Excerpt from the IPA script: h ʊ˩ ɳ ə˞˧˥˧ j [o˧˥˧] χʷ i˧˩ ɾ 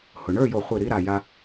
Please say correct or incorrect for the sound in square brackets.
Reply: incorrect